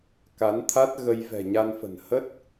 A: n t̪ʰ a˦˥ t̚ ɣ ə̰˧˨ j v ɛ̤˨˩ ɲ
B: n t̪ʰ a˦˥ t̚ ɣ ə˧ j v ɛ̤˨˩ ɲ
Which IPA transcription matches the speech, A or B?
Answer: B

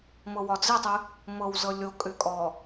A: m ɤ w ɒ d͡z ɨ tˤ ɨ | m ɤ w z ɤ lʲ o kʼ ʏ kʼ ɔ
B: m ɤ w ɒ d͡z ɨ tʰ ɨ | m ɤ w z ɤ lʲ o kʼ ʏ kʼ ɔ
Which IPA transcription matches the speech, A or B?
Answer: A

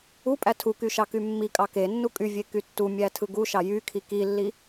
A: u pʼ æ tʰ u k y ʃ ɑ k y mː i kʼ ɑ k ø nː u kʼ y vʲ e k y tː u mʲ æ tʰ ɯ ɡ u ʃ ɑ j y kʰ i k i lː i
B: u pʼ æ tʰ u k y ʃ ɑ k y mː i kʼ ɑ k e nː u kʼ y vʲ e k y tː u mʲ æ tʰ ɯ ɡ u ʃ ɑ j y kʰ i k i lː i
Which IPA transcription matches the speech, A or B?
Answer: B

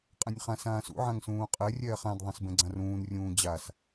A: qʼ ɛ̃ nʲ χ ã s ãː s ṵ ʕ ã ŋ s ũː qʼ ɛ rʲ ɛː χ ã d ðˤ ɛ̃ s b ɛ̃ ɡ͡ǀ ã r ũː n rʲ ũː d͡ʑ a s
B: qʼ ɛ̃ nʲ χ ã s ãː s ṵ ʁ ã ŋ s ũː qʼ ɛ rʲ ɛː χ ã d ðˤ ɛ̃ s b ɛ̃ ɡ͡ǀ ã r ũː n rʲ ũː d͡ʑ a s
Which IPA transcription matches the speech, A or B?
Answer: A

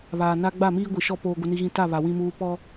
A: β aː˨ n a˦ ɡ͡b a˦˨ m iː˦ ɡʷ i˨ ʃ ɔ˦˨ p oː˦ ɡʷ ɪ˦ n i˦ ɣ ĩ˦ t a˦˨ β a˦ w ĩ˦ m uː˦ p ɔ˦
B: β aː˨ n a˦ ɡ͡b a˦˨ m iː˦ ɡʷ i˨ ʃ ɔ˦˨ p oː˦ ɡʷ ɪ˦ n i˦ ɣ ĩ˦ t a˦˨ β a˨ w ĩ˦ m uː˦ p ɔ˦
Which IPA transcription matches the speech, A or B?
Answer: B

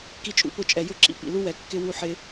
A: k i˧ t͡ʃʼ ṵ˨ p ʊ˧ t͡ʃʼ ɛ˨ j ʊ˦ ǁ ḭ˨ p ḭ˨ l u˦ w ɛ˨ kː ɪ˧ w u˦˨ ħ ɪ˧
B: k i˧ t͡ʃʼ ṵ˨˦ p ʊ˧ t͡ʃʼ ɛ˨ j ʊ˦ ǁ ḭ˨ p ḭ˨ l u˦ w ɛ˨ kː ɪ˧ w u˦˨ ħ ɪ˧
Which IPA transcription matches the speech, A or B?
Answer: B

